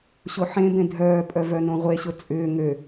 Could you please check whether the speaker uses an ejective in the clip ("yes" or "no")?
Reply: yes